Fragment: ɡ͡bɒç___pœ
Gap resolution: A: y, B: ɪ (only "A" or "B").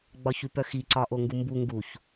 A